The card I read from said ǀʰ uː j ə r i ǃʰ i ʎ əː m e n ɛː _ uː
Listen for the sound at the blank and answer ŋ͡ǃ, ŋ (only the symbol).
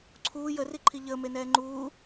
ŋ͡ǃ